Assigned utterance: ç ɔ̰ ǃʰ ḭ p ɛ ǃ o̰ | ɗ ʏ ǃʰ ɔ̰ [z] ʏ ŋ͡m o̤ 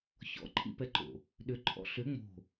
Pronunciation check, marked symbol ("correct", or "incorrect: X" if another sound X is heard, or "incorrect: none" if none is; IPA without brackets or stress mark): incorrect: ɬ